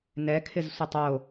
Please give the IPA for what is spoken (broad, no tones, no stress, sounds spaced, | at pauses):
n ɛ kʰ ɪ z sʷ ɪ tˤ o